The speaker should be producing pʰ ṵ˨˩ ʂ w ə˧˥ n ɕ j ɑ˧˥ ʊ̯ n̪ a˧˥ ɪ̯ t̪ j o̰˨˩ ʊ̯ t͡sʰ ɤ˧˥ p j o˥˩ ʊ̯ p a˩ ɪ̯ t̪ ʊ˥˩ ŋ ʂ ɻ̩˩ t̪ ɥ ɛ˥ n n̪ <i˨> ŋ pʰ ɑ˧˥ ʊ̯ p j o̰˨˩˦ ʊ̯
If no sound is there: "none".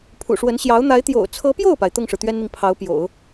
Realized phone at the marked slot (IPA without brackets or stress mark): i˨